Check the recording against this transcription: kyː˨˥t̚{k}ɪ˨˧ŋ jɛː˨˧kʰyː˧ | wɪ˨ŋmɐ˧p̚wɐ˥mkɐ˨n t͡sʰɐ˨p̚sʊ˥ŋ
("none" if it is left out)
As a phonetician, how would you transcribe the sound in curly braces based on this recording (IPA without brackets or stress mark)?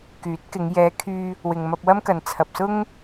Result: k